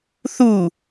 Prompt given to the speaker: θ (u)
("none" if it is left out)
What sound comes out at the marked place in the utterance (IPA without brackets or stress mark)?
u